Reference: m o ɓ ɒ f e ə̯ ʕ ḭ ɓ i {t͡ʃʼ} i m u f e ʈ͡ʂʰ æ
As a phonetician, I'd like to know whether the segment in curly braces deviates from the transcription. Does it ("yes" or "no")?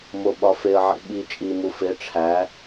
no